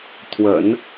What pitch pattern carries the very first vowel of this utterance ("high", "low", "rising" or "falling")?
low